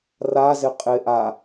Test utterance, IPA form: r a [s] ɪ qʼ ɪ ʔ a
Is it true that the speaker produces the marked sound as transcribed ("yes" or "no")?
no